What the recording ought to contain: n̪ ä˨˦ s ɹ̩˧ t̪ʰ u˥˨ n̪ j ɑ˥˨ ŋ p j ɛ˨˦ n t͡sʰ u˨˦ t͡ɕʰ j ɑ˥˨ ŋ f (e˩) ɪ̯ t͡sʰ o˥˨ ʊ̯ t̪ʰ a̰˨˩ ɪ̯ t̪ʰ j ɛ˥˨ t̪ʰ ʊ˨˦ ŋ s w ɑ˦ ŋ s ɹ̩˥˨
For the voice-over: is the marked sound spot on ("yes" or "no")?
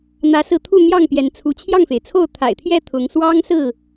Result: yes